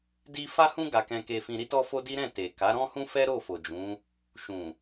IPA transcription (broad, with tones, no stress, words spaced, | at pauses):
di˦ fa˦hũ˦ ɡa˧kɛ̃˧ke˧fĩ˧ ɾi˦tɔ˦fo˦di˦ ɾɛ̃˦˨te˨ ka˨˦ɾɔ̃˦hũ˦ fɛ˦ɾo˦˨fo˨d͡ʒũ˨˦ | ʃũ˨